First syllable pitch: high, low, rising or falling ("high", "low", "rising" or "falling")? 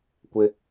high